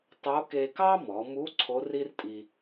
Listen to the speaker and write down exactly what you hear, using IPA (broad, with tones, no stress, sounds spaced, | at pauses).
tˤ o˧˥ k e˧ k ɑ˥ m ɔ˩˧ m u˧˥ ǀʰ o˧˥ r i˥ r tʼ i˧